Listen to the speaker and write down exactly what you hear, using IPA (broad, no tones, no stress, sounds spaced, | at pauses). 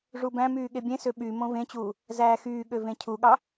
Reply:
ʐ u b æ̃ m yː ɠ e bʲ ẽ s ø ɓ y m õ v ẽ t͡ɕ uː | z æː x yː ɠ ø v ẽ cʰ u ɠ ɑ